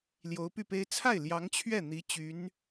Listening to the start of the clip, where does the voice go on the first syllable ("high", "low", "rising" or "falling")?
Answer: rising